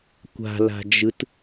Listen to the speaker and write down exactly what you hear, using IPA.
kʷ a̤ l a̤ d͡ʒ ɯ t

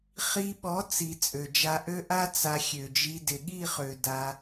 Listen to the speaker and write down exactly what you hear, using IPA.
χ i˧ ɓ ɔ˨˦ t͡s i˨ t͡sʼ ø˨ d͡ʒ a˧ ʔ ø˦ ʔ a˦ t͡s a˧ xʲ ø˨ d͡ʒ i˧ d ɪ˨ ɠ i˦˨ χ ø˨ d a˧

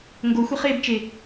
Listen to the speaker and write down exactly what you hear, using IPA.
ŋ ɡ o xʷ e χ eː b t͡ʃ e

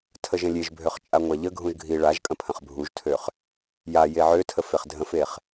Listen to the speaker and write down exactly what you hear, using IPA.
tʰ ə ʒ ə̃ lʲ e ʒ bʱ ø χ t͡ʃʼ a ŋʷ a ʎ ə ɡʱ ũ ʒ ɡʱ i ɭ a ʒ kʼ ə̃ pʰ ə̃ χ bʱ u ʒ tʰ ø χ | j a j e ʕ ø tʰ ə f e χ dʱ ə̃ f e χ

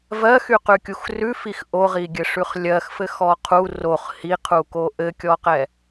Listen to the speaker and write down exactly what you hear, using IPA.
v ɜ x y q ʉ kʲ u x r ʉ f i x ʔ o ʁ i ɡʲ ɘ ʂ ʉ χ lʲ ɜ x f ɘ x ɔ qʰ u r o χ h i qʰ u k o ʔ ɘ kʲ ɔ q ɛ

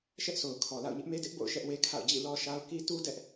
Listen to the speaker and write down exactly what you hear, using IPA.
ʃ ɛ˦ ʔ sʰ o˨ ʊ̯ kʰ ɔ˨ l a̰˦˨ ʊ̯ ɲ ɪ˦ ʔ m e˦ d ɪ˦ ʔ b o̰˦˨ ʊ̯ ʃ ɛ˦ ʔ w e˦ kʰ a̰˦˨ ʊ̯ d͡ʑ ḭ˦˨ l ɔ˦ ʃ a˦ ʊ̯ k i˦ t u˦ d ɛ˦ ʔ

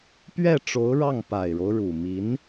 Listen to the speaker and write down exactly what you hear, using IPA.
p ɥ ɛ˥˩ ʈ͡ʂ o˧˥ ʊ̯ ɻ ɑ˥˩ ŋ p a˨˩ ɪ̯ ɻ o˦ ʊ̯ ɻ u˨˩ m i˧˥ n

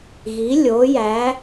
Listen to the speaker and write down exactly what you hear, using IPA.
ɣ i˩˥ lʲ oː˩˥ j æ˩˥

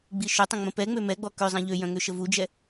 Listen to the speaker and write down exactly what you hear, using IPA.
ɡ͡b i ʃ ʏ tˤ ə̃ ŋ͡m ə̃ p ɛ ŋ͡m ø m ɛ ɡ͡b ɔ k ø zˤ ɛ̃ ʎ ø j œ̃ ŋ ø ʃ ə v u d͡ʒ ɛ

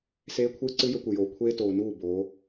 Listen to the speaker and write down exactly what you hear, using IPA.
s eː˦ kʷʰ ɨː˦ ǀ ɨ˦ j ɵ˦ kʷ ɨ˨ j oː˨ kʷʰ eː˦ t oː˨ n uː˦˨ b oː˨˦

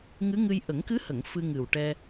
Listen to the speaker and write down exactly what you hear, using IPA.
ŋ ɨ˧˥ ŋ ɨ˧ j ʔ ə˨˩˦ ŋ k ɨ˧˥ h ə˨˩˨ ŋ f ɨ˧ ŋ ɨ˨˩ w ʈ ɛ˧

